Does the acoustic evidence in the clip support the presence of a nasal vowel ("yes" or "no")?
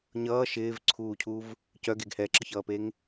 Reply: no